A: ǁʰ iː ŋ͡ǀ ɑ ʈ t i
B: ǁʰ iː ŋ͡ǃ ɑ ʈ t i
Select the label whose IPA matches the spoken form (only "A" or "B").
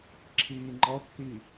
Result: B